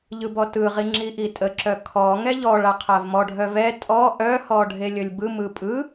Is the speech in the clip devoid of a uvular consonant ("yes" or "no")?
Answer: no